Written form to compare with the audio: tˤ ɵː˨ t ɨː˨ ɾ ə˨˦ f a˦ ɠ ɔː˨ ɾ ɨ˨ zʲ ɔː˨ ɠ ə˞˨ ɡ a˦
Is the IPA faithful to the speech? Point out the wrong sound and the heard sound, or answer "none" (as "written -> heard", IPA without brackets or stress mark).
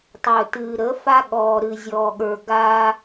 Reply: none